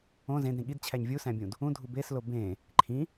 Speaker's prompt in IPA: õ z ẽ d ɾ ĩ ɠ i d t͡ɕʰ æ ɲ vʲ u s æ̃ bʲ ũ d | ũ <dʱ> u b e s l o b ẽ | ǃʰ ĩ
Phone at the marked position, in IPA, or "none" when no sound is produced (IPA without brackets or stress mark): dʱ